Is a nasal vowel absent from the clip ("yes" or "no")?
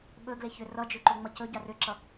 yes